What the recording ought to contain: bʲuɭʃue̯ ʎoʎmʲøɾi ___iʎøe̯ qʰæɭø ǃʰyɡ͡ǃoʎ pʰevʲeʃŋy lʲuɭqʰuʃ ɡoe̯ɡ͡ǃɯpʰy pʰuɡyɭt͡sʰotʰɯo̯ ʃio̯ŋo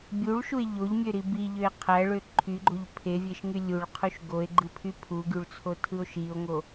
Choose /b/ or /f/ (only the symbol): b